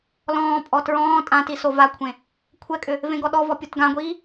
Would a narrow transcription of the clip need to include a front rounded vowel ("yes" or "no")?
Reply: yes